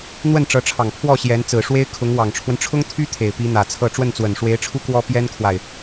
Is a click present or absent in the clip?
absent